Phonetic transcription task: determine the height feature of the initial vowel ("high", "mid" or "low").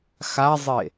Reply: low